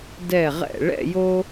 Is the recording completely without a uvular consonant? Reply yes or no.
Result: no